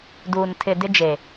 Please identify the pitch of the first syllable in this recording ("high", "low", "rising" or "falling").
low